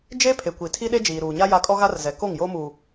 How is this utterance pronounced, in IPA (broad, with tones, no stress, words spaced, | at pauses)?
d͡ʒe˦pʰe˨kʷi˨tʰi˦ ɗe˦d͡ʒiː˨ɾuː˨ɲa˦ ja˦ kʼɔ˦ɣa˦rzɛ˨ ko˦˨ŋjo˦muː˨